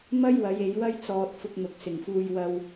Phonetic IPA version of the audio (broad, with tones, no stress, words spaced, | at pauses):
mɐ˥jwɐ˨˧j e˨˧jwɐ˥jt͡sɔː˧t̚ fʊ˧k̚n̪ʊ˨˥k̚sɪ˨ŋfuː˧j wɐ˧w